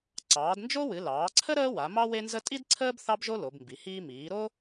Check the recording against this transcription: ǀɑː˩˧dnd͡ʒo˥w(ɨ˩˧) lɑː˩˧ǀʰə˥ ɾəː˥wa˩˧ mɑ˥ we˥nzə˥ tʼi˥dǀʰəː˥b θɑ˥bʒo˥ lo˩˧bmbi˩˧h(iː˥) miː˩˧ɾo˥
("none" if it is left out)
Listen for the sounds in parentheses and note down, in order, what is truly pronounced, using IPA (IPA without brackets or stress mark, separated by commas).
ɨ˩˧, iː˥